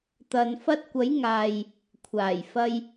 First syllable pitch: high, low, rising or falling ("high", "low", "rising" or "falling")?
low